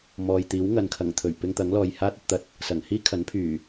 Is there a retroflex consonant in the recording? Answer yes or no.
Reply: no